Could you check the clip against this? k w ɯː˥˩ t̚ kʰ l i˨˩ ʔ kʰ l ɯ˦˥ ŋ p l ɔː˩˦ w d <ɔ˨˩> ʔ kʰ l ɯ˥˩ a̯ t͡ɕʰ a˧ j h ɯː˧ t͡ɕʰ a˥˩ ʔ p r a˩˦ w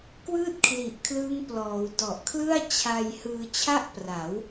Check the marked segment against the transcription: correct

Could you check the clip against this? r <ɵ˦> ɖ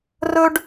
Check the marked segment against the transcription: correct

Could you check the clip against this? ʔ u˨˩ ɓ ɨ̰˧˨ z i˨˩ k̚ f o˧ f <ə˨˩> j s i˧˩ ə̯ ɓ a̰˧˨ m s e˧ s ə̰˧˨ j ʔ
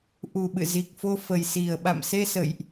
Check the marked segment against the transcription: correct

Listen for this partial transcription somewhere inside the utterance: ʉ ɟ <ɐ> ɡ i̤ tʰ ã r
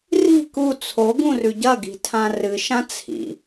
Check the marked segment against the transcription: correct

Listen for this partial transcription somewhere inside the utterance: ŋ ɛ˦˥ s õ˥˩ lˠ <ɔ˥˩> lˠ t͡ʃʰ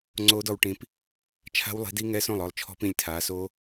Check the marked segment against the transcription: correct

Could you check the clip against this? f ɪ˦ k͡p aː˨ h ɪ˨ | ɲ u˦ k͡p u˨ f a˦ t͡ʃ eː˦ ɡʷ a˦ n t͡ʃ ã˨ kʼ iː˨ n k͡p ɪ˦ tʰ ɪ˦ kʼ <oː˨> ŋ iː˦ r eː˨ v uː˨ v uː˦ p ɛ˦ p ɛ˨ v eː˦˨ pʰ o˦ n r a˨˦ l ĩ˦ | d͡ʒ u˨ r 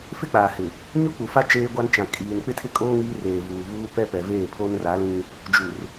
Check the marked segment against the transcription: incorrect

